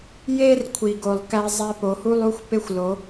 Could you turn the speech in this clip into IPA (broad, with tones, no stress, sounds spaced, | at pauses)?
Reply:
j e˦ r kʷʰ i˨ ɡ o˨ lˠ k æ˦ zˤ æ˦ p o˨˦ h u˦ lˠ u˦ xʷ p e˦ xʷ l o˨˦